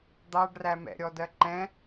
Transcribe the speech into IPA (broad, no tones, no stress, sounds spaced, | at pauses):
d̪ ɑ ɖ r æ m ɛ̰ ɾʲ ɔ d ɜ ǃ ɛ̃